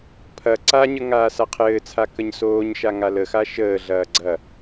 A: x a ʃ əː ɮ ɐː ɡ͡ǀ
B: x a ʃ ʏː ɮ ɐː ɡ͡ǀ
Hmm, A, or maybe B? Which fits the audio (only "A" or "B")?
A